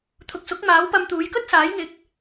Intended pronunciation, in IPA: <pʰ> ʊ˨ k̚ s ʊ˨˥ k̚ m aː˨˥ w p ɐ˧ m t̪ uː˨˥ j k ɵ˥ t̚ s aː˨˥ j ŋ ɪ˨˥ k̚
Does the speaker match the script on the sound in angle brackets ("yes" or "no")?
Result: no